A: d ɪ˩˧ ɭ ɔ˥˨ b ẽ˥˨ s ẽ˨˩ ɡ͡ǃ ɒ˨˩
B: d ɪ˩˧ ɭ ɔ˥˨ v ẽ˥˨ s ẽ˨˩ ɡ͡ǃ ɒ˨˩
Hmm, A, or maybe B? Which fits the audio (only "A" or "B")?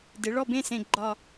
A